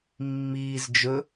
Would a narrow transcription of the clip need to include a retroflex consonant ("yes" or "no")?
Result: no